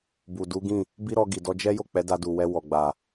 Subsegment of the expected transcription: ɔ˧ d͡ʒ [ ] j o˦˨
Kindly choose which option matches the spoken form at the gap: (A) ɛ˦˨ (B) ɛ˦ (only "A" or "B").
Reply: B